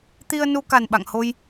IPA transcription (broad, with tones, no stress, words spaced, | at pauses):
t̪i˧ə̯nu˧ ka˨˩nɓa̰˧˨ŋho˧j